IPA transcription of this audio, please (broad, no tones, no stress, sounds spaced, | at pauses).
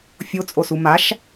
fʲ o t͡sʼ o s u m a ʃ